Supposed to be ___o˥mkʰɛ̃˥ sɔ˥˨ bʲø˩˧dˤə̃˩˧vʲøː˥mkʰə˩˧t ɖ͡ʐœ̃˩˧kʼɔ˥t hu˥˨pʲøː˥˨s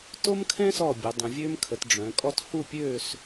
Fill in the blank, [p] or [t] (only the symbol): t